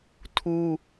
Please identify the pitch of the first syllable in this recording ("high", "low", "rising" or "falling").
high